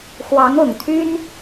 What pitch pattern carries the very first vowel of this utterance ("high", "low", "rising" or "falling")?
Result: rising